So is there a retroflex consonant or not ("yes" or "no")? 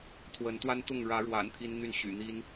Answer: yes